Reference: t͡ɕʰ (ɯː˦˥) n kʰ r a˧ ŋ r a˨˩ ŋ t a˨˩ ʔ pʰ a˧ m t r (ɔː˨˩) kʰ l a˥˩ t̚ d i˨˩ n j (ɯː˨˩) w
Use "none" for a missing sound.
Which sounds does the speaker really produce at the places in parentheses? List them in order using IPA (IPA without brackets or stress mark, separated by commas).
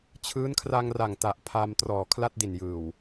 ɯː˦˥, ɔː˨˩, ɯː˨˩